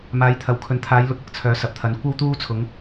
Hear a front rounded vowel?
yes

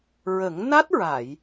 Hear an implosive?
no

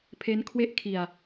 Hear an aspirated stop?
yes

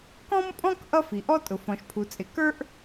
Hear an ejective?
yes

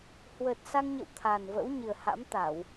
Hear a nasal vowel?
no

